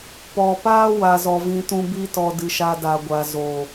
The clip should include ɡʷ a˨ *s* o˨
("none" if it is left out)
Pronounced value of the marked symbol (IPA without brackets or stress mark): z